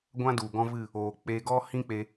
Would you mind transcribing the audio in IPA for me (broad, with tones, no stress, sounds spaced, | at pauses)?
ɡʷ ã˦ d u˨ ɡ ɔ̃˦ v ɨ˦˨ | oː˨ k͡p e˧ ɡ ɔ˦ h ĩ˦ k͡p e˧